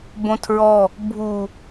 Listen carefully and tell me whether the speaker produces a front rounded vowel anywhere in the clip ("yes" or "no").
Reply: no